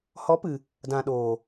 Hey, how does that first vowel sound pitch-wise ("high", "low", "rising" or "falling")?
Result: rising